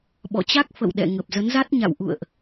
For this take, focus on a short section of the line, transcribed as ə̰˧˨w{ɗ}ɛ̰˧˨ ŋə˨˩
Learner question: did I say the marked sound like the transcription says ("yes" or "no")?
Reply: yes